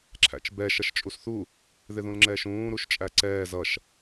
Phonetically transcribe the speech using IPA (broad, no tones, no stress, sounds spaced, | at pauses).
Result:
ǁʰ æ̰ t͡ʃ b ɛ ʃ ʌ ʃ t͡ʃʼ u s θ u | ð ɪ ð ũ l ŋ͡ǁ ɛː ʃ ũː ɾ u ʃ t͡ʃʼ æ ǀ ɛː z ʌ ʃ